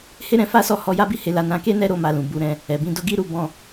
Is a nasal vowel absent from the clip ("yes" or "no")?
no